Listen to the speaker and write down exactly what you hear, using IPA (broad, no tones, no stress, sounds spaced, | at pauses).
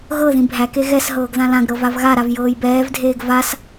ɣ ɤ ð ĩ bʱ æ k e ɣ ɛ s ɦ ɤː ɡ ð ã l ã ɡ ɾ ɤ v a v ɣ a ɾ a v j ɤː j b ɛː v dʱ eː ɡ v a s